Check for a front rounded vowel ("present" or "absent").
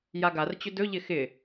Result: present